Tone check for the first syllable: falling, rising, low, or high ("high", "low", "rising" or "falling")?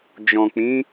low